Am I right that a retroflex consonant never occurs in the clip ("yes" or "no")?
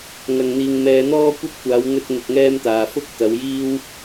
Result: yes